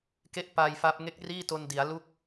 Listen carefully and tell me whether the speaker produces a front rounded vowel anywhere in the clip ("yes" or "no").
no